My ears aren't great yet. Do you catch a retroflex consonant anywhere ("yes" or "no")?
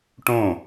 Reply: yes